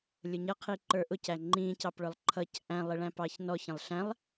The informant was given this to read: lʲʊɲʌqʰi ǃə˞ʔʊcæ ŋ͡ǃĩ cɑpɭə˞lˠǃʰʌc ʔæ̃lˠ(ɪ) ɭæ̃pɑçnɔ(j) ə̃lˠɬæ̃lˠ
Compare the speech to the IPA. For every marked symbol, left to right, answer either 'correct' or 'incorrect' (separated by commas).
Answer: correct, incorrect